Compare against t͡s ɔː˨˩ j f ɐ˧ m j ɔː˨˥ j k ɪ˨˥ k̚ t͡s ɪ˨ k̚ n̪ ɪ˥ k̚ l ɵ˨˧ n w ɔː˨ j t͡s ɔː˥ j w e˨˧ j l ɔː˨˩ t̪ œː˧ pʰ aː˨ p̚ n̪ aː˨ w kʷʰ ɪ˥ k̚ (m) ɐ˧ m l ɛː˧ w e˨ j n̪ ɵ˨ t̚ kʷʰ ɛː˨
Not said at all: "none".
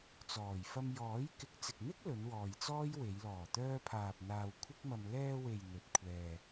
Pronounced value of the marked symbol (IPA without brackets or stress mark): m